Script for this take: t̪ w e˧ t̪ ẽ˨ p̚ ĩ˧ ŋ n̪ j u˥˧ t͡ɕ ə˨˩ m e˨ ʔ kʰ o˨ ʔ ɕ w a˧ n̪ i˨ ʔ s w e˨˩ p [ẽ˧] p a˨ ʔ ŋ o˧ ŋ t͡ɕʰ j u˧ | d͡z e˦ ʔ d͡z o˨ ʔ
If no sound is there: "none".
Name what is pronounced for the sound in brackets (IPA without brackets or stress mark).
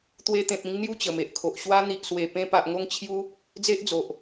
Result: ẽ˧